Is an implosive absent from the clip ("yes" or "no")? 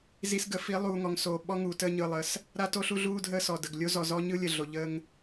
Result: no